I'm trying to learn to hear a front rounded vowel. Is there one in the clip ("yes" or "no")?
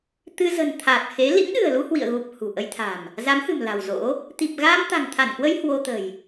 no